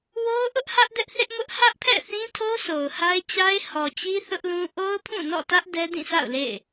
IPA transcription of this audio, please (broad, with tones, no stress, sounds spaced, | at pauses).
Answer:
w o˦ ʊ̯ ʔ ʊ˦ ʔ h ä˦ ʔ d ɛ˦ ʔ θ ɪ˦ ʔ m ʊ˦ ʔ h ä˦ ʔ pʰ ɛ̰˦˨ θ ĩ˦ tʰ o˦ s o˨ ʊ̯ h a˦ ɪ̯ t͡ɕ a˦ ɪ̯ h ɔ˨ t͡ɕ i˦ θ ʊ˦ ʔ l ũ˦ ʔ o˦ ʊ̯ pʰ ũ˦˨ n ɔ̰˦˨ t ä˦ ʔ d ɛ˦ d ĩ˦˨ sʰ a̰˦˨ ʊ̯ l ḛ˦˨ ɪ̯